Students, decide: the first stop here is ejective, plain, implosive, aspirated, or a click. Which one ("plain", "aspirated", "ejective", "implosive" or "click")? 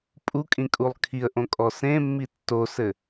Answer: ejective